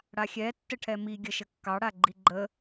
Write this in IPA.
ɽ a xʲ ɛ tː ə ʈʰ ɛ m i ɡʲ ə ʃ ə kː ɑ ɽ a ɡ͡ǃ i ɡ͡ǃ ə

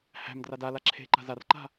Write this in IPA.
h æ̤ m d r a d a l a ǁʰ e̤ ǃ a̤ z a r ǃ a̤

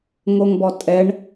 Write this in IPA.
ŋ o ŋ b ɔ tʼ ɛ ɳ

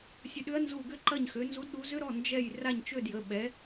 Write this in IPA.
sʲ ə˦˨ ɗ ʏ˦˥ ɐ̯ n z u˦˨ ɡ ʏ˦˨ ǃ ɐ˦˨ ɲ x ø˨˦ n z u˨˦ d ɗ u˨˦ z ʏ˦˥ ɾ ɔ˩˧˩ n d͡ʒ ɛ˦˨ j r a˦˨ ɲ t͡ʃ ø˦˨ d j ə˩˧˩ ɓ ɛ˨˦

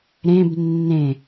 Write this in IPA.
ɾ ẽ b nː ẽ

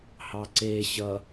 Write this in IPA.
h ɑ ǀ e ɕ ʌ

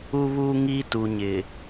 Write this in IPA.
u˦ β uː˦ ŋ i˦ t u˨ ɲ ɪ˨

